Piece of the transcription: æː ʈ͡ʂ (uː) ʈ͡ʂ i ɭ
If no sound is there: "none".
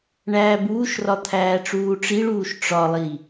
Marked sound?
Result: uː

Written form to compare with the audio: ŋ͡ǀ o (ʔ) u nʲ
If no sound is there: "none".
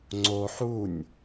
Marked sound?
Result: ħ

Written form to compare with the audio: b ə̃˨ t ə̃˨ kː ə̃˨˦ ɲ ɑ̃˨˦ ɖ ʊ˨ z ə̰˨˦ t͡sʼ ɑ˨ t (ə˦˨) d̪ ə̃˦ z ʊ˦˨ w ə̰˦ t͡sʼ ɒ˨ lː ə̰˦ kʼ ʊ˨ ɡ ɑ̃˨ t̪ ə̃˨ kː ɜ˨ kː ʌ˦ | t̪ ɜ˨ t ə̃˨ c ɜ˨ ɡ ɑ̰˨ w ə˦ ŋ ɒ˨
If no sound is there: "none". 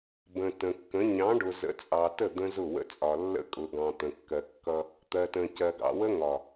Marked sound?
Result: ə˦˨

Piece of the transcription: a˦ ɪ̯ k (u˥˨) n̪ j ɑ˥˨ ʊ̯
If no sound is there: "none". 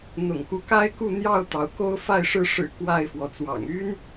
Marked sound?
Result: u˥˨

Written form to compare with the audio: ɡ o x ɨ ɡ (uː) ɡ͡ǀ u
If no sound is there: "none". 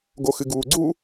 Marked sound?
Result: uː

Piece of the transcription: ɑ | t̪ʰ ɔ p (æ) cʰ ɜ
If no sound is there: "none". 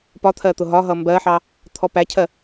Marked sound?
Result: æ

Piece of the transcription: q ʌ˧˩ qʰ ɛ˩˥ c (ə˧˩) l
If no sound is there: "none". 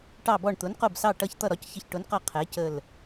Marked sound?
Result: ə˧˩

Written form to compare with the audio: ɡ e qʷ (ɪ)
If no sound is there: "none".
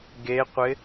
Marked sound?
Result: ɪ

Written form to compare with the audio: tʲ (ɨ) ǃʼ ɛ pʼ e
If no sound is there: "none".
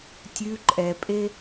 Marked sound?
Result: ʉ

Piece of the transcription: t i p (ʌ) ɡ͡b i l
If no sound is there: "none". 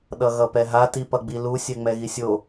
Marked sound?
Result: ʌ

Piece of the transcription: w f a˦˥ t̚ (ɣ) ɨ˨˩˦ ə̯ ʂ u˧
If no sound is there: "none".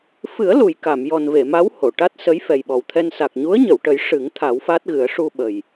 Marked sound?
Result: ɣ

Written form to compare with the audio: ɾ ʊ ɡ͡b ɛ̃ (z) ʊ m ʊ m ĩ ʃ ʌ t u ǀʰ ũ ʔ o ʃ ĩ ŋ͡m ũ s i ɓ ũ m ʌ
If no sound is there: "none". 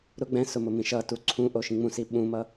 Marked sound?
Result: s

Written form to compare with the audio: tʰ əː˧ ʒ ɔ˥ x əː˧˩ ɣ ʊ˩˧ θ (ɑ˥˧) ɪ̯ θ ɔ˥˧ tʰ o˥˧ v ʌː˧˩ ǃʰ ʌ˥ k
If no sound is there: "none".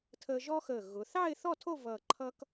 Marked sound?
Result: ɑ˥˧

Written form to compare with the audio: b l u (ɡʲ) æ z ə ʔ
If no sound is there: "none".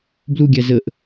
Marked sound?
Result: ɡʲ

